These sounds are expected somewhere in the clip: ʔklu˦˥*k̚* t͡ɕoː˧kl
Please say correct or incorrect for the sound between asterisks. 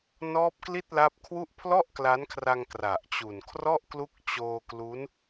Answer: correct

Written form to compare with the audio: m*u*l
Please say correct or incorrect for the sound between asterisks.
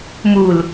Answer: correct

